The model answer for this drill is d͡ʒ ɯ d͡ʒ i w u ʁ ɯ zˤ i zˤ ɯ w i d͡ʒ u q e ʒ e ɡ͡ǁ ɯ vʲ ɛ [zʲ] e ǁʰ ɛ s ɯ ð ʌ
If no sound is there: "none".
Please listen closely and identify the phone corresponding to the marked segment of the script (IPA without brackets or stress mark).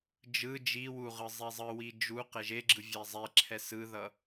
zˤ